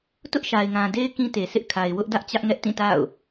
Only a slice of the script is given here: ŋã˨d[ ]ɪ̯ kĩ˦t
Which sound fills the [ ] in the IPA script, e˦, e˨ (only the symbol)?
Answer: e˦